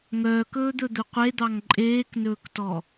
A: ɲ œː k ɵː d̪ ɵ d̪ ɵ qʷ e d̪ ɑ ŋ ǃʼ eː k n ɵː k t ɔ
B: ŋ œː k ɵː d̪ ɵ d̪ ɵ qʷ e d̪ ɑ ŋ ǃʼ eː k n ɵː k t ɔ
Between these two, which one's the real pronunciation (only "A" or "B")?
B